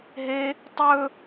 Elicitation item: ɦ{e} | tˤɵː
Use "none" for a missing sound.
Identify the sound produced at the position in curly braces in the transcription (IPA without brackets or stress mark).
e